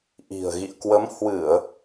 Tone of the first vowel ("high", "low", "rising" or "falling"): low